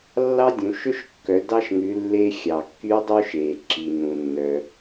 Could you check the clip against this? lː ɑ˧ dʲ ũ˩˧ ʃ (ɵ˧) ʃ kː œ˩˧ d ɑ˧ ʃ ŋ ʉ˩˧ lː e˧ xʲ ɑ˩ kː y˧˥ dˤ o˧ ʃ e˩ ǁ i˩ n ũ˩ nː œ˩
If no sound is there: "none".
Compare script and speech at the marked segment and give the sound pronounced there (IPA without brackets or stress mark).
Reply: ɵ˧